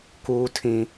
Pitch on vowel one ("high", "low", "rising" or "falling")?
high